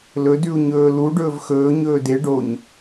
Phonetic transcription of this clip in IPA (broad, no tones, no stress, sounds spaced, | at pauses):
l ɵ d ʉ u̯ ɲ ɵː l u ɖ ɵː v x ɵː ɲ ɵː d e ɖ o ɲ